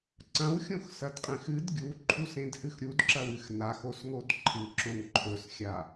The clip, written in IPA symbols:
ǀ ɐ̃ w xʲ õ x s ɐ d qʼ ẽ x ɨ d ɡʲ u ǃʰ u s ẽ d h ɨ x ɾʲ u d ǁ ɐ w ɨ x n a x o s ŋ o d ǃʰ ɨ ǁ õ ŋ ǃʰ ɵ s xʲ a

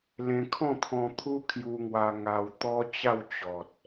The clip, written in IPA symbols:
l ẽ˧ kʰ ɔ̃˥˧ t̪ʰ ɔ̃˧ t̪ʰ u˦ kʰ j u˧ ŋ w a˧ ŋ a˧ w t̪ ɔ˦ t͡ɕ a˥˧ w t͡ɕ ɔ˨ t̚

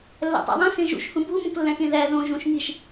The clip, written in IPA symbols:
lː æ̰ tˤ æ̰ ðˤ ẽ s ẽ ʒ ṵ ʃ h ũ bʱ u m õ k lː æ̃ k ẽ ð æ ð õ ʒ ũ ʃ ŋ i ʃ

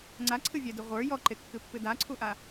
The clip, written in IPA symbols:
ŋ͡ǀ a ǀʰ ɨ vʲ ɛ d ɨ ʁʷ ə˞ j ɔ ǃ e kː ɨ pː ɨ d a ǀʰ u ʔ a

